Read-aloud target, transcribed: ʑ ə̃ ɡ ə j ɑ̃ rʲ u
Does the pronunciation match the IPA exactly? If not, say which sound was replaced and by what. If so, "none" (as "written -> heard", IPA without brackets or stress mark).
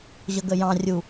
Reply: ə̃ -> ə